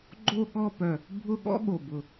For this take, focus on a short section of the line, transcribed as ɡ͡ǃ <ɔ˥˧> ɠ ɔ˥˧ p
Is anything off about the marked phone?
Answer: yes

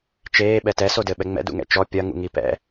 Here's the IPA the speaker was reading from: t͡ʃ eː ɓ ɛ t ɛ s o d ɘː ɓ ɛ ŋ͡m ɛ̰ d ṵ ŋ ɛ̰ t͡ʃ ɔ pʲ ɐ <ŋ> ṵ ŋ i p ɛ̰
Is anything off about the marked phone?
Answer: no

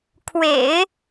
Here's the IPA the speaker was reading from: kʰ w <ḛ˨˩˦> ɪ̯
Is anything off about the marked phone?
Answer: no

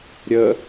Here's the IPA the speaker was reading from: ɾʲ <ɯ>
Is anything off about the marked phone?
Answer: yes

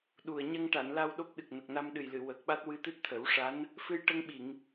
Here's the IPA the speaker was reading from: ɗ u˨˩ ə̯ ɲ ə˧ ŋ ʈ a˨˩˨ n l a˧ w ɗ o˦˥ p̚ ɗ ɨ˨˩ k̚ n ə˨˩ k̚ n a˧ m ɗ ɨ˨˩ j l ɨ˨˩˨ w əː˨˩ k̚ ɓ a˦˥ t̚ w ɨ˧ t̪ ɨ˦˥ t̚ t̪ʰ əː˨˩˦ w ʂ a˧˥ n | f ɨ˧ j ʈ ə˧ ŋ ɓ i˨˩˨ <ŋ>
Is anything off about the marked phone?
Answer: no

